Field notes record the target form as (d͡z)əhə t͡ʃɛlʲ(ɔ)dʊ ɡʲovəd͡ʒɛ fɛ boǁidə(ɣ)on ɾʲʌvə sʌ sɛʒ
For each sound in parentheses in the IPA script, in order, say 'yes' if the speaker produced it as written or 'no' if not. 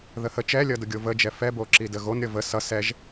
no, no, yes

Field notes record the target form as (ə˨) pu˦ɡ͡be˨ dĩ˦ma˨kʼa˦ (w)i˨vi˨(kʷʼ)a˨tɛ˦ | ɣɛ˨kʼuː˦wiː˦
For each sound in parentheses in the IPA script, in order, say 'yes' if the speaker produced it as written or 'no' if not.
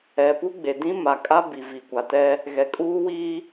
no, no, no

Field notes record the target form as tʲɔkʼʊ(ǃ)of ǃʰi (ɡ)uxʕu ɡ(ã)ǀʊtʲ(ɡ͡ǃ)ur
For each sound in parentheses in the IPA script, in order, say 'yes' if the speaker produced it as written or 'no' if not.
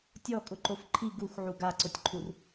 yes, yes, no, no

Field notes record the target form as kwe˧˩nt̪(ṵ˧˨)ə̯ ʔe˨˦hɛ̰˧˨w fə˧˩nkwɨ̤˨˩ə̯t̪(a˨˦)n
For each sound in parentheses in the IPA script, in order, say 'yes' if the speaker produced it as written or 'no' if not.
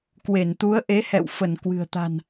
no, no

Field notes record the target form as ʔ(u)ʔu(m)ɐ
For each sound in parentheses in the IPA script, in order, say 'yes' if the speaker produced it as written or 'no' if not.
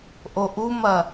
no, yes

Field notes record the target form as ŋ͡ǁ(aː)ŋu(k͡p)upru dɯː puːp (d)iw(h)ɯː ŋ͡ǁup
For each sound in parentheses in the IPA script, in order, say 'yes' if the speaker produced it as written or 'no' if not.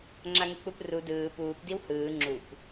no, yes, yes, yes

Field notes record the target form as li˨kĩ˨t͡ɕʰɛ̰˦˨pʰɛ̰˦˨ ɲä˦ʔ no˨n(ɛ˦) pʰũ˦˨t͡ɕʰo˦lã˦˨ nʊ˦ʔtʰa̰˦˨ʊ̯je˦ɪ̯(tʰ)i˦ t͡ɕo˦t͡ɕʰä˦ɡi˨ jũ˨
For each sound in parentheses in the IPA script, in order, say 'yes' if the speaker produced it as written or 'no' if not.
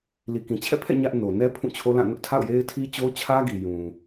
yes, yes

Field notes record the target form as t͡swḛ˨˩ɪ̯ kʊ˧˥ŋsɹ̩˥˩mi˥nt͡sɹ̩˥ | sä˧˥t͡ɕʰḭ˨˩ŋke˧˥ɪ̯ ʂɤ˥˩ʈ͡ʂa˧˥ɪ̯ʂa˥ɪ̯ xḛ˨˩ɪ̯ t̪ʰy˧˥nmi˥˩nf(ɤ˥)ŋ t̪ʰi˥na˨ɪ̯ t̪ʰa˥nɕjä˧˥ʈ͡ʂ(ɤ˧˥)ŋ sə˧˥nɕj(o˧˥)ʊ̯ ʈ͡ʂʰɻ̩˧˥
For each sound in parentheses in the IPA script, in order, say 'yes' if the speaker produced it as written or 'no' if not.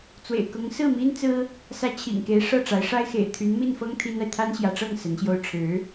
yes, no, no

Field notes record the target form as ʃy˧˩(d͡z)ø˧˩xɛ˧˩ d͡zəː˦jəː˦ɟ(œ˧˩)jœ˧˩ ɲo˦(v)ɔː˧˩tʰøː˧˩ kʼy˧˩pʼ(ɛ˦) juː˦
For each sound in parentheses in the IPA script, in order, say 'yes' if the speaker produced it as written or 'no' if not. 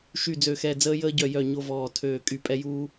yes, yes, yes, yes

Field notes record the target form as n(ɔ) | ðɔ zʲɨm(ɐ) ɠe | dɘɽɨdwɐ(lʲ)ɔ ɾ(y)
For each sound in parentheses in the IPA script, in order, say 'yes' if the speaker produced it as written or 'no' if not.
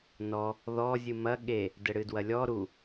yes, yes, yes, no

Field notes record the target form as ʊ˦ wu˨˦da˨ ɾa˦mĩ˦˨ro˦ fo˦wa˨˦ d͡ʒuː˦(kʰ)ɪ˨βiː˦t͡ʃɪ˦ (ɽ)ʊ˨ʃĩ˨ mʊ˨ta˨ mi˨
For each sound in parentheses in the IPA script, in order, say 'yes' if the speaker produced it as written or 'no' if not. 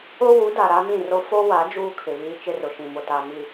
yes, no

